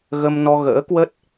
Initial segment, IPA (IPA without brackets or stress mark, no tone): ɣ